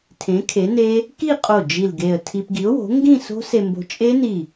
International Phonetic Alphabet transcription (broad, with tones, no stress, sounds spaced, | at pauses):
tʰ ẽ˨˥ kʰ e˨˥ n e˦˥ | k i˥˧ qʼ o˧˩ d͡ʒ i˧˩ l ɡ e˧˩ ə̯ tʰ i˧ p ɡ i˨˥ ʊ̯ w o̤˨˥ ŋ ɡ ĩ˥˧ s o̤˦˥ s e˧ m b o̤˧ t͡ʃʼ e˦˥ n i˧˩